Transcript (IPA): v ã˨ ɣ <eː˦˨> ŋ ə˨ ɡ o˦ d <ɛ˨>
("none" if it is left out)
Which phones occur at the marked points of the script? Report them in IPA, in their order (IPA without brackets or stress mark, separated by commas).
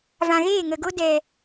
eː˦˨, ɛ˨